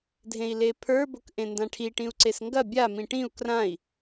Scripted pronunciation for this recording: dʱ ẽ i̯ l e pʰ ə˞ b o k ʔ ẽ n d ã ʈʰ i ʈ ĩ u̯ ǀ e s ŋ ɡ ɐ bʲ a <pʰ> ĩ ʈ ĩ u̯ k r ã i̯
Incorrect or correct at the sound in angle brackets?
incorrect: m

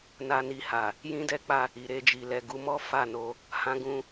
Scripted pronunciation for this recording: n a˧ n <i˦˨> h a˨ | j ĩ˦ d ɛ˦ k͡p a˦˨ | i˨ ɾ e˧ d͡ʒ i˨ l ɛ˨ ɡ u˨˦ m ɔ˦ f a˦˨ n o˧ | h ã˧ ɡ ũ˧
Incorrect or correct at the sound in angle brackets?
incorrect: i˧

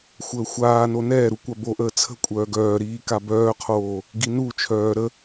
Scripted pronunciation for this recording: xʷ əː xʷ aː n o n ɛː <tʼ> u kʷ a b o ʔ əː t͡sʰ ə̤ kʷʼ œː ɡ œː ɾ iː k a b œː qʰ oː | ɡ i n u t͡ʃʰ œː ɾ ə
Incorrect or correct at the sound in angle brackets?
incorrect: ɾ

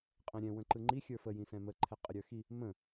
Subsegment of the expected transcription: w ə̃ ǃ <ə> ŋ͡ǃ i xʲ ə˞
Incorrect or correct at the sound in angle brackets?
incorrect: ɯ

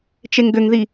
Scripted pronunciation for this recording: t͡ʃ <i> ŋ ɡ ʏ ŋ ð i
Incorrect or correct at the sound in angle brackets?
incorrect: e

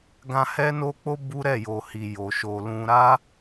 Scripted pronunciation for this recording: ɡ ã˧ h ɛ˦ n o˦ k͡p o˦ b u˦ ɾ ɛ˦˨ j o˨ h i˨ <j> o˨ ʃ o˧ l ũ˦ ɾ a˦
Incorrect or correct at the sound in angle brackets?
correct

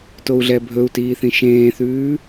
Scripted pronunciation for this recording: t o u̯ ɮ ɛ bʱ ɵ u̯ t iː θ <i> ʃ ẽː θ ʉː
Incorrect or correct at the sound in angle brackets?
incorrect: ĩ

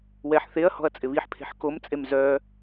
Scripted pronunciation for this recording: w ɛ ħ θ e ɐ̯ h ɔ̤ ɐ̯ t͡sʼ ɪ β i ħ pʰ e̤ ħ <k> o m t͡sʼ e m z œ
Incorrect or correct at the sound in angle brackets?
correct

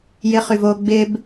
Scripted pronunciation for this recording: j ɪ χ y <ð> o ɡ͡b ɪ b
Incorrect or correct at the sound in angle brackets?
incorrect: v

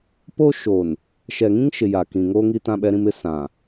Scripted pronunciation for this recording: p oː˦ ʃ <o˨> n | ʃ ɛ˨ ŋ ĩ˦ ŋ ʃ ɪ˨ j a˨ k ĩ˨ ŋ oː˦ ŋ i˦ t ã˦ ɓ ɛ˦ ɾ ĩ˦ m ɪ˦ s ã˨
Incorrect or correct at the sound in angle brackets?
incorrect: oː˨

